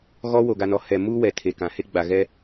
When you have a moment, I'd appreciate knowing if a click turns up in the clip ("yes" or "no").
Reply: no